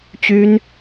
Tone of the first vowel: high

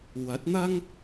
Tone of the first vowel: rising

